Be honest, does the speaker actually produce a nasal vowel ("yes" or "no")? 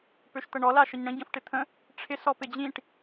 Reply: yes